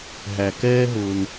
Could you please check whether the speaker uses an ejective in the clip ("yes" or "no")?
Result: no